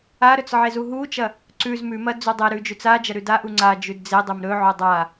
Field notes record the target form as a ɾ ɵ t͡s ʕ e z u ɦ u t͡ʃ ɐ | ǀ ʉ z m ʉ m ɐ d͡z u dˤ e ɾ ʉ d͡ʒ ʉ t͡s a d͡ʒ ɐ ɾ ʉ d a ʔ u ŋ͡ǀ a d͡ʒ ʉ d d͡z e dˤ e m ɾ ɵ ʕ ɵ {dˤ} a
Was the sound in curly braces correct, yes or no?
yes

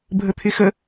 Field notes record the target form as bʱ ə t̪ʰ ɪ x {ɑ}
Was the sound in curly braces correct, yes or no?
no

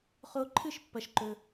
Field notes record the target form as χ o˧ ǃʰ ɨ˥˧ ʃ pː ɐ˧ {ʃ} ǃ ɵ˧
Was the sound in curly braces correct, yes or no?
yes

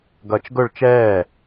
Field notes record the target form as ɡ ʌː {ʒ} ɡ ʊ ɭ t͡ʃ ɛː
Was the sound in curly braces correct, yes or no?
no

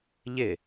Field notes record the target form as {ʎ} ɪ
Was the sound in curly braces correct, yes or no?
yes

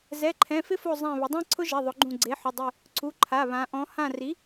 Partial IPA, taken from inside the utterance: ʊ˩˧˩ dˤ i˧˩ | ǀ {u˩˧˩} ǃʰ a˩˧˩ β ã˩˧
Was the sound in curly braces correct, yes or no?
yes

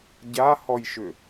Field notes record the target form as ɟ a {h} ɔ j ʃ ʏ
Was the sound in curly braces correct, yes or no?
yes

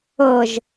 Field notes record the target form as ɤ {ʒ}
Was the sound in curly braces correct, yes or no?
yes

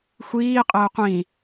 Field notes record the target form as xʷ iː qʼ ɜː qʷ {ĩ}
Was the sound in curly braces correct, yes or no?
yes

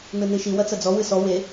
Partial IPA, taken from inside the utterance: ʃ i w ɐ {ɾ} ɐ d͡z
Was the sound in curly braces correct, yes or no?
no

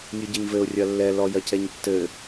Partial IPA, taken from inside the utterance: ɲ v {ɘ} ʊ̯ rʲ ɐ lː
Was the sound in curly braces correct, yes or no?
yes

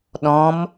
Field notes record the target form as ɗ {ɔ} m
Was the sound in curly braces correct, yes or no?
no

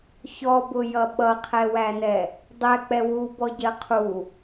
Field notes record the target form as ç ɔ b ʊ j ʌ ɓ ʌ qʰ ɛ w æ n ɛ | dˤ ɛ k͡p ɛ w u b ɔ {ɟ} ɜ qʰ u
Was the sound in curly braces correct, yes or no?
yes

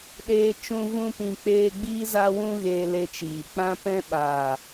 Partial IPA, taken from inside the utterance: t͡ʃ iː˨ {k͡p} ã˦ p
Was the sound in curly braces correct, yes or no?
yes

